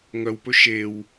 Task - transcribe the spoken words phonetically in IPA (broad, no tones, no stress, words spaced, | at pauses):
ŋœwpɵ ʃew